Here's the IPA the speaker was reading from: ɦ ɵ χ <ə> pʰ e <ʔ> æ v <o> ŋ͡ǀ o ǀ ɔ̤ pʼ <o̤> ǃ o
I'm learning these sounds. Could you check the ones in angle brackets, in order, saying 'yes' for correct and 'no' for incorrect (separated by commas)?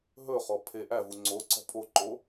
no, yes, no, no